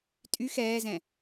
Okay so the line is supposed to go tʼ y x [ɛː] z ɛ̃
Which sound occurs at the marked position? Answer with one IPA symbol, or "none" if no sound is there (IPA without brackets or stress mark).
ɛː